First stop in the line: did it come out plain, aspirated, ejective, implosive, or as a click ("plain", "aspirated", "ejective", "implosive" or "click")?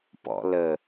plain